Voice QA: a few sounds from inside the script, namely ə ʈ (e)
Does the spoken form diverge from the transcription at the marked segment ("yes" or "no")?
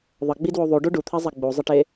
no